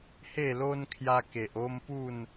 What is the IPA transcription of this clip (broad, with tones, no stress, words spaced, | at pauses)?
he˥˧lo˦n kʰja˧ke˨ʔ o˦mpu˥˧n